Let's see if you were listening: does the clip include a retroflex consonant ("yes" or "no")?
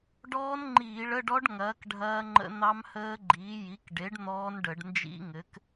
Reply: yes